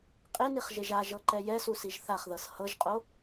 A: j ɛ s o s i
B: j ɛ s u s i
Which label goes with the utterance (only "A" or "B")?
B